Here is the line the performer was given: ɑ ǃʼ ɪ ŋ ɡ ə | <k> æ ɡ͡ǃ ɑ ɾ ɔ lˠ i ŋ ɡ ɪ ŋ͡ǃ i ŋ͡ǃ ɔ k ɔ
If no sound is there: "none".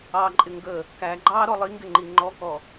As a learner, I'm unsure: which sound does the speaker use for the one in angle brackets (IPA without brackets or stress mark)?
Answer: k